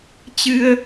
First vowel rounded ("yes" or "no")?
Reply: no